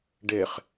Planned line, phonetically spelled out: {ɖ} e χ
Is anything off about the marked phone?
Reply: no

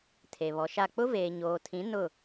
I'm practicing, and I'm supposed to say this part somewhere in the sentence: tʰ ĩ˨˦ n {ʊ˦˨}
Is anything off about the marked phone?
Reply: no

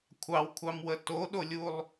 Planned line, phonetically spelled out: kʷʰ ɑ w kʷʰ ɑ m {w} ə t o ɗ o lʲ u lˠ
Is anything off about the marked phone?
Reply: no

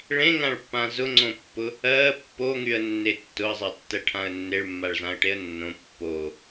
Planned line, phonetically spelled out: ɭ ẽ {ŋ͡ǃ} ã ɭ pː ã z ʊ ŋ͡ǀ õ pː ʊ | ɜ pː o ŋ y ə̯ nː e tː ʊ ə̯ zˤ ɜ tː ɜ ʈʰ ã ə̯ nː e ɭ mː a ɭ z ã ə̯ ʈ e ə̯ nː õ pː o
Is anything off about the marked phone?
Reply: yes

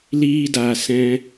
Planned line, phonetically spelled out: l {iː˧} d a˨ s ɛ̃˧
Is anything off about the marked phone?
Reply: no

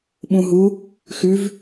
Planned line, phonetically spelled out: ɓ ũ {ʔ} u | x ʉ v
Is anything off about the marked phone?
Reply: yes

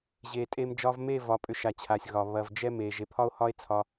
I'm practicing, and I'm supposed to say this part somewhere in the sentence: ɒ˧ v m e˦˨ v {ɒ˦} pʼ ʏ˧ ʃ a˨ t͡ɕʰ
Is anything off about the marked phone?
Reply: yes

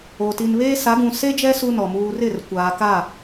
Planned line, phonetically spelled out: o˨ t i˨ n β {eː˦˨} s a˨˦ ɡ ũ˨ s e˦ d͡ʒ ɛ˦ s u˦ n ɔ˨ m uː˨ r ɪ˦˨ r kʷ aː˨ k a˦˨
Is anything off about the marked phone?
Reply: yes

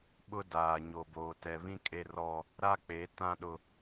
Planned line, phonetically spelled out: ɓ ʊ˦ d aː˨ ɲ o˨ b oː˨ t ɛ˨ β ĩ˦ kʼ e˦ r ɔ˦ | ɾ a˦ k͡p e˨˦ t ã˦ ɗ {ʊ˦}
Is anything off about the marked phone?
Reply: no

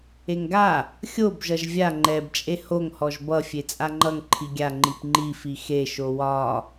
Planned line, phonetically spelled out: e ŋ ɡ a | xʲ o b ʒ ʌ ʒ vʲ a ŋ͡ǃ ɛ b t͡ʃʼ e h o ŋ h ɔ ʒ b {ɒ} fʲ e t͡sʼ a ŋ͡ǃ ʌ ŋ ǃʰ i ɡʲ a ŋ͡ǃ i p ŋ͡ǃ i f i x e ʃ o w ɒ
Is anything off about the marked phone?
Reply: yes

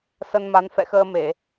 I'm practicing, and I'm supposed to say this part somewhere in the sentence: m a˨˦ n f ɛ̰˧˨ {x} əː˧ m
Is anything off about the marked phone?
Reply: no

